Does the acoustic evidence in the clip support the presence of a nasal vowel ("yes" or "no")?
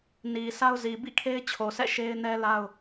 no